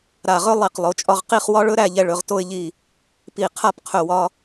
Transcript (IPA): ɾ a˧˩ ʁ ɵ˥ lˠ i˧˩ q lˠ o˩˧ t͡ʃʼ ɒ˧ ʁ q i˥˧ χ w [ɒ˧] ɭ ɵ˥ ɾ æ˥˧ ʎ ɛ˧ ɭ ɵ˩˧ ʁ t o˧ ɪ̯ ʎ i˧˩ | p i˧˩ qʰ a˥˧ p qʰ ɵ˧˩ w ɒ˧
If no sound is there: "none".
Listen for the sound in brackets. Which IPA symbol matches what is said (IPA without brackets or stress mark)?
ɒ˥